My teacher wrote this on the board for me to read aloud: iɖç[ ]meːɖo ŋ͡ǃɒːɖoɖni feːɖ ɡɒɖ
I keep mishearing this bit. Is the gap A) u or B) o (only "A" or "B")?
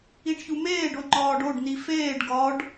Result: A